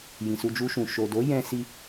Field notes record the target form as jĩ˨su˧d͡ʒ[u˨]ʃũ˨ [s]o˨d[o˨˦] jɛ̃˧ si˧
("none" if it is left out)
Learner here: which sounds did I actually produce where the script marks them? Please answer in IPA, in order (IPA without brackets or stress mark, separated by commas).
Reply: u˧, ʃ, o˨˦